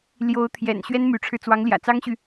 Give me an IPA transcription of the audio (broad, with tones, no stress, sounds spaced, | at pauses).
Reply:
l j o˧˥ ʊ̯ t̪ʰ j ɛ̰˨˩ n ɕ ɥ ɛ˥ n m y˧˥ ʈ͡ʂʰ ɻ̩˧ t͡s w ɑ˧˥ ŋ l j ä̰˨˩ t͡s ɑ˥ ŋ ɕ y˨